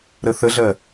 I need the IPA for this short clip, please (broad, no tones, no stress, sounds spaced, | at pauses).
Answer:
ɾ ə θ ə ɮ ɜ